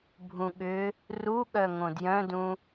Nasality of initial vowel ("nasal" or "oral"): nasal